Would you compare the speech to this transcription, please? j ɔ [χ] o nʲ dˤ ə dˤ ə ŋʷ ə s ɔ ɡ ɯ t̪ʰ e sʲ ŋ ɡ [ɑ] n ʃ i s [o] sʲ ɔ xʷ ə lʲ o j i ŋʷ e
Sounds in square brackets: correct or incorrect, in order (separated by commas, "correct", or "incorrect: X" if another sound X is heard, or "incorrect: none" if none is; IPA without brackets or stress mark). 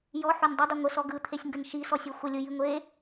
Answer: incorrect: ħ, incorrect: ə, incorrect: ɔ